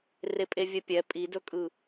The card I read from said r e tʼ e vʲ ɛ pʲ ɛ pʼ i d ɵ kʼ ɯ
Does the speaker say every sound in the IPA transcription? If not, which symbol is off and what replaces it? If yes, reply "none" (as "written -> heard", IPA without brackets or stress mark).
tʼ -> pʼ